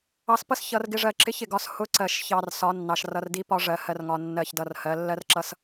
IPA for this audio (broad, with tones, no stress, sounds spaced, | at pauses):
ɑ˧ s p ʌ˦ s ç ʌ˧ r ɡ ɪ˦ ʐ ɜ˧ ǁ ɪ˦ ç ɪ˨ ɡ ɒ˦ s h ʊ˨˦ ǀ ɜ˨ ʃ ç ɑ˨ r s ɒ˨˦ nː ɑ˨ ʃ r ʌ˧ r d i˦ p ɒ˦ ʐ ɜ˧ h ɜ˦ r ŋ ɒ˧ nː ɜ˦˨ ç d ʌ˦˨ r h ɜ˨˦ lː ɜ˦ r ǁ ʌ˦ s